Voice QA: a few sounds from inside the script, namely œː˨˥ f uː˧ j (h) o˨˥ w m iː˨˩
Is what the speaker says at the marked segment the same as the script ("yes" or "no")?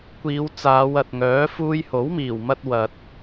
yes